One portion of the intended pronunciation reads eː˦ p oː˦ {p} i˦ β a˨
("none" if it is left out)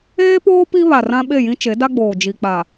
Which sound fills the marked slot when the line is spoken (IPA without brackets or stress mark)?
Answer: p